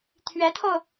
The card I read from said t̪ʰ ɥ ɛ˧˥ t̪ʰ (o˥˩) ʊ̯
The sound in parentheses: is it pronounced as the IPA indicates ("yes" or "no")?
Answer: no